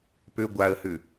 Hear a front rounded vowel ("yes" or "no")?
yes